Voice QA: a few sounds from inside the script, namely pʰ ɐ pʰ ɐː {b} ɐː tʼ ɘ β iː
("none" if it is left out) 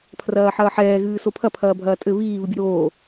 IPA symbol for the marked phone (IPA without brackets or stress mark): bʱ